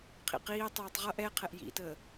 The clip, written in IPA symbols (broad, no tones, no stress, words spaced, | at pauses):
qʰḭqiːtˤiːtˤ ʁʌʔ ɛqʰɛʔ jḭtəː